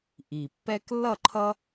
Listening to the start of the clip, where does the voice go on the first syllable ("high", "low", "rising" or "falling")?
low